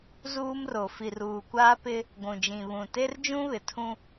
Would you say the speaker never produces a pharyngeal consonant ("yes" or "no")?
yes